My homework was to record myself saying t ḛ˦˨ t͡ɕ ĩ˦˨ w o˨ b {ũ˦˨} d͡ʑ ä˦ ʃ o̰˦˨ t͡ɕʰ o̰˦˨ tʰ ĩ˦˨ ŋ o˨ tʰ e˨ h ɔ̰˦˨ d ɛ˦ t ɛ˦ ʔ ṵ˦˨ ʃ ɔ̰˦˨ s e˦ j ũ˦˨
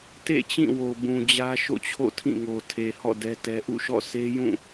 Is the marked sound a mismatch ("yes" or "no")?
yes